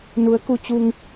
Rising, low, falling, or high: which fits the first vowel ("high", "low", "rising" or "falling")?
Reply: rising